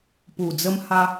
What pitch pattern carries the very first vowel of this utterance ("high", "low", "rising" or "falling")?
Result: low